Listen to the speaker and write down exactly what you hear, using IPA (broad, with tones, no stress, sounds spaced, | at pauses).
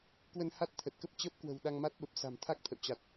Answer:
k w ə˧ n h a˦˥ t̚ t̪ʰ ə˨˩ t̚ k ə˦˥ p̚ t͡ɕ əː˦˥ p̚ k w ə̤˨˩ w ɗ a˧ ŋ m a˦˥ t̚ ɓ ə˨˩ p̚ s a̤˨˩ m t̪ʰ a˦˥ k̚ t̪ʰ ə̰˧˨ w t͡ɕ a˨˩ t̚